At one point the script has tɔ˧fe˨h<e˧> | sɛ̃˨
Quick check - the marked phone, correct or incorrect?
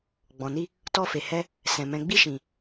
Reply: incorrect